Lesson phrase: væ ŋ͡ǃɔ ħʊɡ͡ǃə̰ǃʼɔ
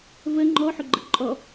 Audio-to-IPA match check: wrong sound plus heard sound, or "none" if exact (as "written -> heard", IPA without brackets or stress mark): æ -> ə